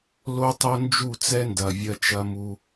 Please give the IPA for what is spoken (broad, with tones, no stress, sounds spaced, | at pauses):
l o˦ tˤ o˦ n d͡ʒ u˦˨ t͡s ɛ˦ n d ɐ˨ vʲ ɐ˦ t͡ʃ ɐ˦ m u˦